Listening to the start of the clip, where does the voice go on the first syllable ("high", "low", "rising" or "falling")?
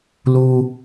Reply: high